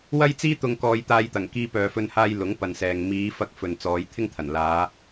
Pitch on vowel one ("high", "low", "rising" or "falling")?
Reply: high